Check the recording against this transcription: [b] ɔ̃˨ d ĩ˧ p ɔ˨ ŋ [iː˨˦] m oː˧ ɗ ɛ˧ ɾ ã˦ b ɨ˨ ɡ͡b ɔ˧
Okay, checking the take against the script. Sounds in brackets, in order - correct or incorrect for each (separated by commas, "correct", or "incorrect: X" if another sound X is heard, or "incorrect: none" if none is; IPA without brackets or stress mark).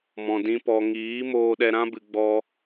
incorrect: m, correct